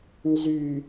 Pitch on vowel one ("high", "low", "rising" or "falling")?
low